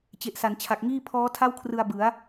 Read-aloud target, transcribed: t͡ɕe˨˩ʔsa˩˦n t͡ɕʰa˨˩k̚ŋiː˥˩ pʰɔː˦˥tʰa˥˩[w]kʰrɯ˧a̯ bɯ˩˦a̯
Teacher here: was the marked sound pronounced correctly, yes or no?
yes